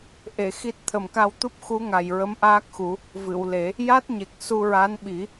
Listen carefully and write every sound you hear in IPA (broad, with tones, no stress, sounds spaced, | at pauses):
ʔ e˨˩˨ x i˦˥ t̚ t̪ʰ ə˨˩ m k a˧ w t̪ u˦˥ p̚ x u˧˥ ŋ a˨˩ j ɹ ə˧˥ m ʔ aː˦˥ k̚ x u˨˩˦ | v ɨ˨˩˨ w l e˨˩˦ | j a˦˥ t̚ ɲ e˨˩ k̚ s u˧ ɹ a˧˥ n ɓ i˨˩˦